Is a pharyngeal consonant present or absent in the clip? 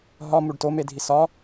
absent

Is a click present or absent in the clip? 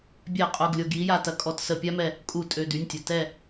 absent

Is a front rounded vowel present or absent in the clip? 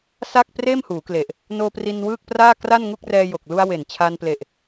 absent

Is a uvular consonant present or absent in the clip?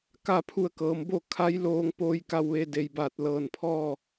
absent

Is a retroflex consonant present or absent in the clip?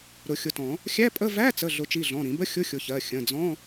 absent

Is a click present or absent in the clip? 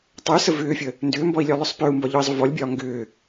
absent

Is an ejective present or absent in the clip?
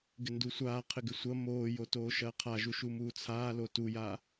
absent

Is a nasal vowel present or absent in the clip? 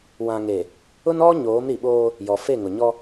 present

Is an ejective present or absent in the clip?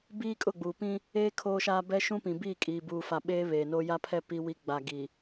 present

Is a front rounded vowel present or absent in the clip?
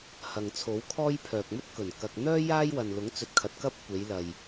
present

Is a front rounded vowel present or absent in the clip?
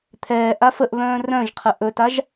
present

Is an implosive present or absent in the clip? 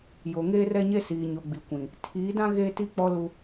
absent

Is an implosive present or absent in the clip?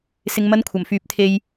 absent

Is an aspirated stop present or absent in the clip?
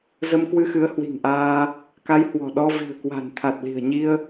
present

